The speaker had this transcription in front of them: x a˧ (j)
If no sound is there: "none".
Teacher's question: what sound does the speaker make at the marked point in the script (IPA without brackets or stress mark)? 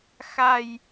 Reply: j